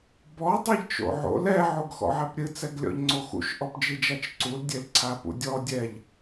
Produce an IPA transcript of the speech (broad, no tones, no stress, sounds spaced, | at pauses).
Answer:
b ɔ dˤ ɛ ʎ t͡ʃ o̰ ʕ o̰ l ɛ ʕ o ɡ x ɔ̰ ʕ ɛ p ɾʲ ɨ t͡s ɛ ɡ lʲ ɔ̰ ʎ ŋ͡ǀ o x ṵ ʃ ʔ ɔ p d͡ʒ i d͡ʒ a t͡ʃ ǀ u l dʲ e l ǀʰ a p ṵ dʲ ɔ dʲ ɛ ʎ